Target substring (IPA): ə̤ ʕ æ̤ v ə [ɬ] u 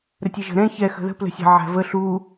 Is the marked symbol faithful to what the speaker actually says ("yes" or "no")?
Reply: yes